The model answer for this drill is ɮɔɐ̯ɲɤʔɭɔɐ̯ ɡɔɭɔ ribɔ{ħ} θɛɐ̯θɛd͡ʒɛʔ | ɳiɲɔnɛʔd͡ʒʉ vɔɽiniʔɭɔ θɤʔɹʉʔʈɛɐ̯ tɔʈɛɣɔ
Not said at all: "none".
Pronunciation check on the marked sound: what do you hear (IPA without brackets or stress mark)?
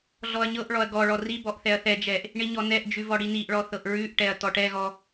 ʔ